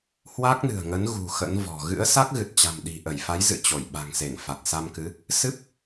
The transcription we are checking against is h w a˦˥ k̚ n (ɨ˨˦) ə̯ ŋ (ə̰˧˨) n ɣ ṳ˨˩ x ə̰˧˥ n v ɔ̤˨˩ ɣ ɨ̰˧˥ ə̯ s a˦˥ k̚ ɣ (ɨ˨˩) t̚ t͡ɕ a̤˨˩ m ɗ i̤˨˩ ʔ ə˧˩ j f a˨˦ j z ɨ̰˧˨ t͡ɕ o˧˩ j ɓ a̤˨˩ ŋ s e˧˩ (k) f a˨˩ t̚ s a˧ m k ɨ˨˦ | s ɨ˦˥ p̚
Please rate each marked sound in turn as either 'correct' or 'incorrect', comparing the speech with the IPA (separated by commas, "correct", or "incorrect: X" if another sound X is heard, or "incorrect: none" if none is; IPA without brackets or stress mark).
incorrect: ɨ̤˨˩, incorrect: ə˨˦, correct, incorrect: ŋ